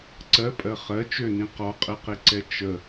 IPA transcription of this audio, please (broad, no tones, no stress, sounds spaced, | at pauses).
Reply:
ǀ ɜ pʼ ɜ χ ɜ t͡ʃ ø n ĩ q ɔ qʼ ɛ q e ǀ ɛ t͡ʃ ə